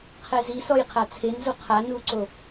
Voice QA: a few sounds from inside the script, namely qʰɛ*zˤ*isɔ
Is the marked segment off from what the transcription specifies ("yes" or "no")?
yes